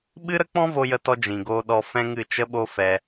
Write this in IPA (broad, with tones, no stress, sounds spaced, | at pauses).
ɓ ɨ˦ ɾ ə˦ k͡p ɔ̃˦ v o˧ j ə˦ t ɔ˦ d͡ʒ ĩ˨ ɡ oː˧ ɗ ɔ˧ f ɛ̃˦ ŋ ɨ˦˨ t͡ʃ ə˦ ɓ o˦ f ɛ˧